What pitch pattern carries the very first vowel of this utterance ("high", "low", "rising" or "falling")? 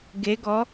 rising